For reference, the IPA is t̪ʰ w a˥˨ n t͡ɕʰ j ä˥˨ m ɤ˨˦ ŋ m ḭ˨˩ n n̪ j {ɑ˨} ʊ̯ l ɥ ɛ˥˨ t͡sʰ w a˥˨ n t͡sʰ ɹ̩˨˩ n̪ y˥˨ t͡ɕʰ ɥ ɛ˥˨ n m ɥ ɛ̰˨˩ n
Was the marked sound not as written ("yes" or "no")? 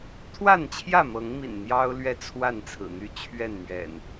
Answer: yes